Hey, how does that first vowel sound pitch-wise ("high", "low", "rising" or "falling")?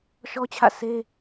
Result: high